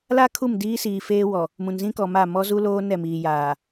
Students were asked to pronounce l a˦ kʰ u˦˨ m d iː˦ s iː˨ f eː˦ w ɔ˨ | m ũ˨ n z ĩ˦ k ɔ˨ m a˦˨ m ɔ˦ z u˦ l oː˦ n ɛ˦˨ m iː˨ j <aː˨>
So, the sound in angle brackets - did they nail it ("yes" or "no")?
yes